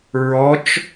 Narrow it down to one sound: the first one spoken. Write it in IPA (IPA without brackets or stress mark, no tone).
ɹ